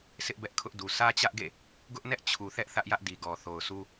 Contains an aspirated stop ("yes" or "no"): yes